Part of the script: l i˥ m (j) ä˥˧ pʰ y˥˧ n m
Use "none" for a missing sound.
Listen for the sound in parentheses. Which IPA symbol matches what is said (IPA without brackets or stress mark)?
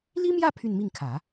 j